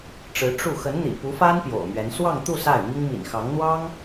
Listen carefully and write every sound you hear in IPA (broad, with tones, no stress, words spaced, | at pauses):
ʈ͡ʂɻ̩˧˥ ʈ͡ʂu˥˩ xə˧˥nn̪ḭ˨˩pu˧˥fa˥n pjo̰˨˩ʊ̯mɥɛ˧˥n swɑ˥˧ŋt̪u˥˧ sa˥˩ɪ̯mi˥ŋ mḭ˨˩n xɑ˧˥ŋ n̪wɑ˥ŋ